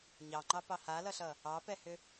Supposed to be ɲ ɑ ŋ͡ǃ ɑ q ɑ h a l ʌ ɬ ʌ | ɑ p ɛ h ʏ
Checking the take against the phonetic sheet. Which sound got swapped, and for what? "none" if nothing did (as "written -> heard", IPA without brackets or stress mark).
q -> p